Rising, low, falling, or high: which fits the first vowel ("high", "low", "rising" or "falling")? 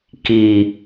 low